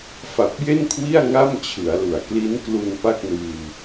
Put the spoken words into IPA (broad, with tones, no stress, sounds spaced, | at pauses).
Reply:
f a˨˩ p̚ j e˥˩ n kʰ w i˥˩ a̯ ŋ a˥˩ m t͡ɕʰ ɯ˩˦ a̯ l u˩˦ a̯ k l i˦˥ n k l u˧ n p a˥˩ k̚ n ɯː˧